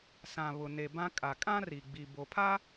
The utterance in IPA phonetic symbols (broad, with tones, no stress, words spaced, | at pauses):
sã˨ βʊ˨ne˨bã˦ kʼa˨kʼã˦ ri˨ɡ͡bi˨bo˨pʰa˦